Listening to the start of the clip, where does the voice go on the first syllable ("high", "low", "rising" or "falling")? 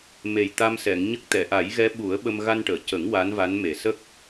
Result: low